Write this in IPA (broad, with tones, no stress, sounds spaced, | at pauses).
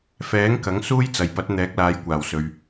f ɛː˨˥ ŋ k ɐ˨˥ ŋ s uː˥ j t͡s ɐ˨ j p ɐ˨˥ t̚ n̪ ɛː˨˥ k̚ l aː˨˧ j kʷ aː˨˩ w s ɵ˨ ɥ